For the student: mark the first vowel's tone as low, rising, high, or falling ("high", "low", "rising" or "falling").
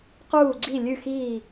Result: falling